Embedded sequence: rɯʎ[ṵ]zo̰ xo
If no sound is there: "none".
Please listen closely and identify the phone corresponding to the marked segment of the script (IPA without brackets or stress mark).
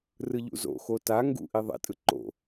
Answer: ṵ